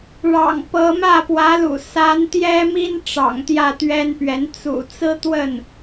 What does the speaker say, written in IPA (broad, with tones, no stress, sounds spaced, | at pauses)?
ɻ ɑ̰˨˩ ŋ p ɤ˧˥ m ä˥˩ p w ä˧˥ l ṵ˨˩ s a˧˥ n t̪ j ɛ˥ m i˥ n ʈ͡ʂ ɑ̰˨˩ ŋ t̪ j ä˥˩ t̪ ɥ ɛ˥ n p ɥ ɛ˧˥ n t͡s ṵ˨˩ t͡s ɹ̩˥ t̪ w ə˥˩ n